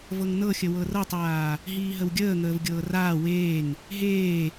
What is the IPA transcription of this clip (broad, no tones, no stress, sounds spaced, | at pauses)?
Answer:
v ɤ ŋ n ɤ xʲ ə w ɤ r ɤ tˤ w aː | ɦ iː ɦ ə w ɡʲ əː ŋ əː v ɡʲ ɤː r aː w eː ŋ | ɦ eː